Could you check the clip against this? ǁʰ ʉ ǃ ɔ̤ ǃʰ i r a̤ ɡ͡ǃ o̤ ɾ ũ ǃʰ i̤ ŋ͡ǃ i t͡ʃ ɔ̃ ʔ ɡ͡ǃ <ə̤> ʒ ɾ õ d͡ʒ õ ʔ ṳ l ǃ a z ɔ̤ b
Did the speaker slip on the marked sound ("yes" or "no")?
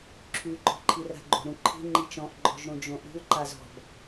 yes